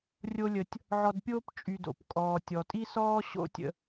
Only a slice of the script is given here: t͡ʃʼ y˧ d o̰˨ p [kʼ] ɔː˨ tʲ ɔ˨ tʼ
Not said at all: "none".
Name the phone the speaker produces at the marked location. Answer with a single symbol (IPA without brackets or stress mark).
kʼ